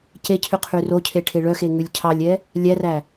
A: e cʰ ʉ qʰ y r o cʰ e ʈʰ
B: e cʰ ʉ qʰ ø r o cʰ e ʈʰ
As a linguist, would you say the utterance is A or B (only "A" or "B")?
A